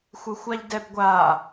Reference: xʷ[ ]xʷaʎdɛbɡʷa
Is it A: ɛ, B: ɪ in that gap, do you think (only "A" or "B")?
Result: B